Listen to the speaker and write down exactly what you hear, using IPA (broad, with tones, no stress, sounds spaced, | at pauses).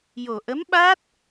j o˨˩ ʔ ə˧˥ m ɓ aː˦˥ t̚